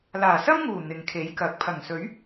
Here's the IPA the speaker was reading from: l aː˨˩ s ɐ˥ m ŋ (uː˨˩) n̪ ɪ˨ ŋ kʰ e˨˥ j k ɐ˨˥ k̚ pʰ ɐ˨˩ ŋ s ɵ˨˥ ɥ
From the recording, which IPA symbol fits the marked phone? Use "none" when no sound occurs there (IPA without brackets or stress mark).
uː˨˩